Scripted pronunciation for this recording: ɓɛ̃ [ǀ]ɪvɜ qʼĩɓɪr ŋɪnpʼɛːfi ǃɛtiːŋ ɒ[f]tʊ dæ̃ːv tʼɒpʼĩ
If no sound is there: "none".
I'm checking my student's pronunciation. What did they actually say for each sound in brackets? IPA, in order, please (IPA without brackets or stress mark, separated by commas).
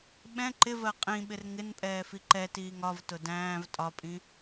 ǃ, v